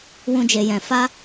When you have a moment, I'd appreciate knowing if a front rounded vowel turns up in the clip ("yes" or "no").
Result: no